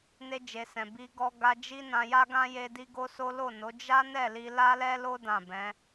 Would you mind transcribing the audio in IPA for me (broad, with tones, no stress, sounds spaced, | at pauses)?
n e˧ d͡ʒ e˨ s ɛ̃˨ b i˧ ɡ ɔ˧ ɡ a˧ d͡ʒ i˦ n ã˧ j a˦ ɡ ã˦ j e˧ d i˦ ɡ o˦ s o˦ l o˦˨ n o˨˦ d͡ʒ a˦ n ɛ˦˨ l i˧ l a˦ l ɛ˦ l o˦ d ã˦˨ b ɛ̃˨˦